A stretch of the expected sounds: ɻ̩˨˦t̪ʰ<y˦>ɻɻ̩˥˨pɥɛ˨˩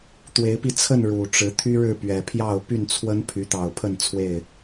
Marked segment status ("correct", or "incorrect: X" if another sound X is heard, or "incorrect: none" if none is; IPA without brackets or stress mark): correct